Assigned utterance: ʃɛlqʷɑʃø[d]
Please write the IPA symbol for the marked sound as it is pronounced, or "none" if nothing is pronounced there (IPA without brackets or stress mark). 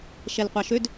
d